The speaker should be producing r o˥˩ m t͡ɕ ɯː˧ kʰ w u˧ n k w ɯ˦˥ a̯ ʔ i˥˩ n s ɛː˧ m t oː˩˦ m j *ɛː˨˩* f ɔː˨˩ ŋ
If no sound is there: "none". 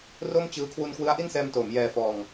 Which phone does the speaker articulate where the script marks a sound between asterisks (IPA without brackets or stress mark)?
ɛː˨˩